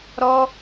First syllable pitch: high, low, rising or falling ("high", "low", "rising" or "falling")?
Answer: high